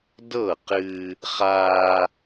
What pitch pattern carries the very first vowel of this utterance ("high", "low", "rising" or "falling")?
falling